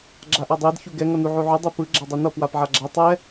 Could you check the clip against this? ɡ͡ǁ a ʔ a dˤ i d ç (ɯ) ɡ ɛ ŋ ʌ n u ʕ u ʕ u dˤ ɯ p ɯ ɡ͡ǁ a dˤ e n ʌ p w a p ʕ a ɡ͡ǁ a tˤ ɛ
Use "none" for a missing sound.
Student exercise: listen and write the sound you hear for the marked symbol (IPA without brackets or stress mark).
u